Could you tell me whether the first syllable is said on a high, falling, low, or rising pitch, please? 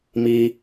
high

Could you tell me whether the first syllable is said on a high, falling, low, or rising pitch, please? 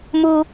high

